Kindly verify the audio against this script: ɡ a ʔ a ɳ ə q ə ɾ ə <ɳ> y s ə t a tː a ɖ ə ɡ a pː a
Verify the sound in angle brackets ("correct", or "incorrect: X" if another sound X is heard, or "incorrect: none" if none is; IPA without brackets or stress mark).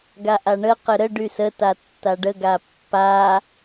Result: incorrect: ɖ